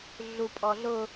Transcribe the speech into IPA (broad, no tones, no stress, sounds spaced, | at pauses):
ɮ u pʼ ɔ ɮ ʊ